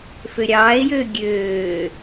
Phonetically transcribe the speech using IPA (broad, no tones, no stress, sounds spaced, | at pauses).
f ø ɾʲ ɑː e̯ j øː ɡʲ øː